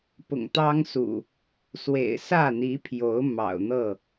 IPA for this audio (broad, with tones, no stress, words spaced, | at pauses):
pʊ̰˨˩ŋt̪ɑ˦ŋsṵ˨˩ | swḛ˨˩ɪ̯sä˥˨n̪i˨˦pʰjo˨˦ʊ̯ mɑ̰˨˩ʊ̯n̪ɤ˥˨